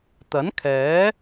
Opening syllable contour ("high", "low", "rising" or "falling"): rising